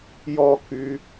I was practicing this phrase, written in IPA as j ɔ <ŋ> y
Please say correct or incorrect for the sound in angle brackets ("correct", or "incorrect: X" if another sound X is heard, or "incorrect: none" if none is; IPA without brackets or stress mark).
incorrect: k